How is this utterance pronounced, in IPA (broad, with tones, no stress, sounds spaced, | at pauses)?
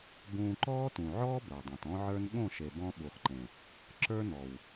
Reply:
b ũː˧ ǃ ɔː˦ t ũ˨ ʕ ɔː˦ b ə˞˨ dˤ ũ˨ t ɔ̃˦ ʕ ə˞˦ n ɠ õ˦˨ ʃ e˨ b ɔ̃˧ ɓ u˨ χ ǃ ẽ˨ | ǁ ə˞˦ n ɔ˨ w